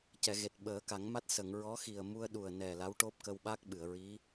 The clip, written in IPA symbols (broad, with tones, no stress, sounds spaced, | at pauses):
c ɛ˨˩˨ ɣ e˨˩ t̚ ɓ əː˨˩˦ k a˨˩˦ ŋ m a˦˥ t̚ s ə˨˩˨ ŋ ɹ ɔ˧˥ x i˨˩ ə̯ m u˧ ə̯ ɗ u˨˩ ə̯ n ɛ˨˩ l a˧˥ w ʈ o˦˥ p̚ k ə˧ w ɓ a˦˥ k̚ ɓ ɨ˨˩˨ ə̯ ɹ i˧˥